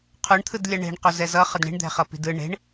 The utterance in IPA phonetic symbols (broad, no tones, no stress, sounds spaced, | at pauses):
qʰ o ɳ t̪ʰ ɯ d lʲ a ɳ e̤ ɳ q o z ɛ z ʌ χ ʌ d ɳ i̤ ɳ d̪ ɛ̤ χ ʌ p i̤ d ɯ ɳ e̤ ɳ